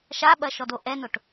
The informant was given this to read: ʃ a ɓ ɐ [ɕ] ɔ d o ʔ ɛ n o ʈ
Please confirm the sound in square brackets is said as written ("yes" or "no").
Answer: no